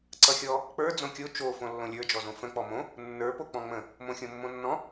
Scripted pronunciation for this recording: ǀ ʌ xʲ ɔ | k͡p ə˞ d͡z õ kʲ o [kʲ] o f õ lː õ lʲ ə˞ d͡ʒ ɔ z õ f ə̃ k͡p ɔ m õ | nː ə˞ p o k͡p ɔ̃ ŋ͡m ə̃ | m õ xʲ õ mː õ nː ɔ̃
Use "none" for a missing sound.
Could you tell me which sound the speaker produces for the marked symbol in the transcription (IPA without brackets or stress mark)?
t͡ʃ